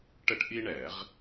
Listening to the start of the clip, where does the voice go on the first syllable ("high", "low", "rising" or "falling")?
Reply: high